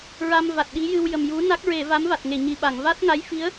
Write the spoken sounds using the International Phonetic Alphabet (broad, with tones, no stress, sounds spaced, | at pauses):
ɹ a˧ m v a˨˩ t̚ ɗ i˧˥ j ɨ˧ w j ə˨˩ m j u˧˥ n a˦˥ k̚ ɹ e˨˩˨ v a˧˥ m v a˨˩ t̚ ŋ e˨˩˨ ɲ i˨˩˨ ɓ a˨˩˨ ŋ v a˦˥ t̚ ŋ a˧˥ j f i˧˥ ə̯